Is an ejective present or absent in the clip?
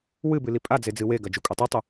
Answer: present